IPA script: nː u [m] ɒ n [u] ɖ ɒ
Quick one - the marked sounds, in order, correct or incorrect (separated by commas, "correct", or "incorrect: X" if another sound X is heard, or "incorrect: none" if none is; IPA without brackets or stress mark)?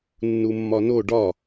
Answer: incorrect: mː, incorrect: o